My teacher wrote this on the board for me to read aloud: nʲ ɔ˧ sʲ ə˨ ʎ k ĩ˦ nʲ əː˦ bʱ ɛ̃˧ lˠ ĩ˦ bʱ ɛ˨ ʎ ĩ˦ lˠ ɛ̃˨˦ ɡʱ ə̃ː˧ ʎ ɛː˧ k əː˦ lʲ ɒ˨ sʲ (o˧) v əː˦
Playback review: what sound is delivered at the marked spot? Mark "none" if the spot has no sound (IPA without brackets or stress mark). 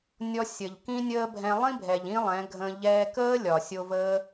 o˧